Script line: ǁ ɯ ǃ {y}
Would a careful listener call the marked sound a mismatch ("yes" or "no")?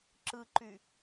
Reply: no